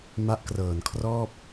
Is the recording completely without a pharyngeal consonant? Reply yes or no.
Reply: yes